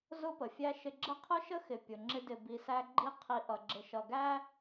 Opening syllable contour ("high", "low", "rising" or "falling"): high